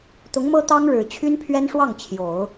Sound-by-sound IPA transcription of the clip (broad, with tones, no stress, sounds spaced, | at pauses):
t̪ ʊ˧˥ ŋ m ɤ˥ t̪ ɑ˥ ŋ ɻ ɻ̩˨˩ t͡ɕʰ y˥ n pʰ ɥ ɛ˥ n ʂ w ɑ˥˩ ŋ t͡ɕʰ j o˨˩˦ ʊ̯